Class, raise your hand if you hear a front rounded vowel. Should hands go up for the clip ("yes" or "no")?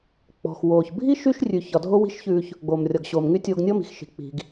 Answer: yes